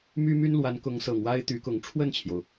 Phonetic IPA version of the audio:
m y˥ m y˥ n l w a˧˥ n k ʊ˧˥ ŋ s ɤ˨˩ ŋ w a˥ ɪ̯ t̪ y˧˥ k ʊ˧˥ ŋ ʈ͡ʂʰ w ə˥˩ n t͡ɕʰ j o˩ ʊ̯

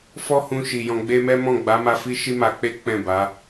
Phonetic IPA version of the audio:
f ɔ˦ h ũ˧ ʃ i˨ j ɔ̃˨ ɡ͡b e˧ m ɛ˦ m ɔ̃˦˨ ɡ͡b a˨˦ m a˧ f i˦ ʃ i˦ m a˧ k͡p e˦ k͡p ɛ̃˦˨ b a˨˦

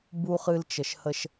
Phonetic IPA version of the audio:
b u˨ χ ɨ˨ l t͡ʃ ə˨ ʃ h ə˦ ʃ

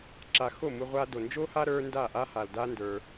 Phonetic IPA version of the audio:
ǁ a˧ x o˦˨ m u˧ ʁʷ a˧ d o˨ n d͡ʒ o˦ h a˦ ɾ ə˞˦ n d a˦˨ ʔ a˦ h a˨ l d a˦ n d ə˞˧

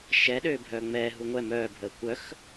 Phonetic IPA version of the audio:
ʃ ɛ ɗ øː bʱ œː ŋ͡m ɛː ɦ u ŋʷ ɛ m œː bʱ əː kʷ œ x

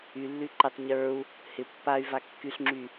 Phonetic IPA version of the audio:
y lː y ǃ ɪ tˤ ɲ ə˞ u̯ | h ɪ pː a y̯ v a kː y ɬ ŋ͡ǁ y

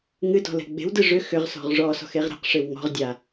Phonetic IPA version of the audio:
ŋ ɨ d ɔ̤ l ɛ̤ ɡ͡b e̤ w d ɨ ʐ ʏ x ʏ ʁ s ɔ̤ ʁ ʐ ɔ s ɔ̤ x e ʁ ɾ ɛ̤ q ʂ ɪ w ŋ ɔ̤ ʁ dʲ a

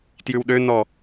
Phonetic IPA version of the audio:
t j ʉ w ɗ ø n ɔ

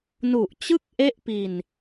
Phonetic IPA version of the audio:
n u˨˩ ʔ t͡ɕ ɯ˥˩ k̚ ʔ e˥˩ ʔ p i˧ n

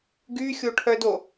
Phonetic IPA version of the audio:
ɡ y xʲ o ʈʰ œ d o

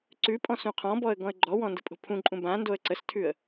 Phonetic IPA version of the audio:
ǀ ʉ pʼ ɔ̃ s ũ qʰ ɔ̃ b ɔ ə̯ ɡ ɔ̃ ə̯ ɡ͡ǃ ɔ w ɔ̃ n d ə̤ pʼ o̤ pʰ ũ ǃʼ ũ b ã n d o ə̯ ǀ ə s tʰ ʉ ə̯

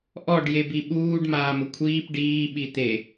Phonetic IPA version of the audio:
ʔ ɔ ɖ j e b i ɓ uː ɖ m aː m ʊ kʷʰ iː p ɖ iː ɓ i t̪ e

